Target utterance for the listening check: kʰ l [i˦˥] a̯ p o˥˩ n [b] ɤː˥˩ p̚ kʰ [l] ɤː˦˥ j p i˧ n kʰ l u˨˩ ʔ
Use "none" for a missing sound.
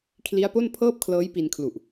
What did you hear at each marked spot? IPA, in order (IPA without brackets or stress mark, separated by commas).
i˦˥, pʰ, l